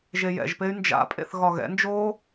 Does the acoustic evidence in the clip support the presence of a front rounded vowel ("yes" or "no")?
yes